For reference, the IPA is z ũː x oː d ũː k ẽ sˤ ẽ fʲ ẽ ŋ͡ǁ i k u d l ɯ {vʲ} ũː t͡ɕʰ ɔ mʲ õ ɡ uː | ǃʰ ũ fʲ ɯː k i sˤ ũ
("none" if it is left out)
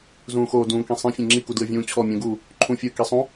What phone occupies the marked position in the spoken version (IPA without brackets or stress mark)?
vʲ